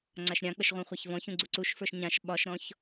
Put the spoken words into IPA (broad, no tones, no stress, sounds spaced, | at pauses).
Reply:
ŋ͡ǀ a ʃ ɾʲ ã k͡p ə ʃ ʁʷ ã χʷ a ç v ɔ̃ ç ũ ɡ͡ǀ u ǀ u ʃ f ə˞ ʃ ɲ ã ʃ ɓ ɒ ʃ ɾ ɔ̃ ç